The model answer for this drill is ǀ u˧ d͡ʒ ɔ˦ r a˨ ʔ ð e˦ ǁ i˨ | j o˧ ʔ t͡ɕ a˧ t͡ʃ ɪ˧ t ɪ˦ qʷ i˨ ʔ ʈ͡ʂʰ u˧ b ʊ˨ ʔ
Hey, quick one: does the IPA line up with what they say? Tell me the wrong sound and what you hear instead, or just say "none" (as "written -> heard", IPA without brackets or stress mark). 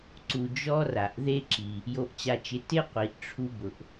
none